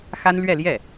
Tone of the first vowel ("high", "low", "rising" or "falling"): high